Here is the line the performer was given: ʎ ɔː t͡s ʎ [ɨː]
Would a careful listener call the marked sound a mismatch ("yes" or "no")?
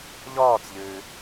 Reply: no